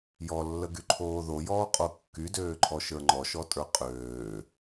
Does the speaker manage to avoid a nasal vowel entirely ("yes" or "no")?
yes